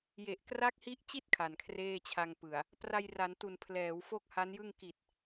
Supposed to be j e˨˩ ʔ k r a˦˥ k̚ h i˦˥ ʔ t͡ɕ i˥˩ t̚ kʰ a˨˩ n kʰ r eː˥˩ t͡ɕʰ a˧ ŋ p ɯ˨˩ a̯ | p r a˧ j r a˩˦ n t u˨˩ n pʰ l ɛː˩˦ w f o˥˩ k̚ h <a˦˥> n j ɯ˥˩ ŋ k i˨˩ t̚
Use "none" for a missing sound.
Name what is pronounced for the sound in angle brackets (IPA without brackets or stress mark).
a˦˥